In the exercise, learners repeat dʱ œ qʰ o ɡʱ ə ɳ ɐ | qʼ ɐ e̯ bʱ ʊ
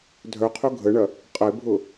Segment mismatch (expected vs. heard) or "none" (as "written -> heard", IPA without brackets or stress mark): none